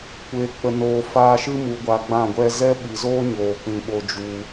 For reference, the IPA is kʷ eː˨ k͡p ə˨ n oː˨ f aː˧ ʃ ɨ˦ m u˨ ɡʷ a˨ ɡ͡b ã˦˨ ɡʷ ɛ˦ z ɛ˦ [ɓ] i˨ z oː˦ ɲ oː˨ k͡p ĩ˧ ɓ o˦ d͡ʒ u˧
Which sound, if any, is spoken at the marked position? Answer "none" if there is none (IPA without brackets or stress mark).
ɓ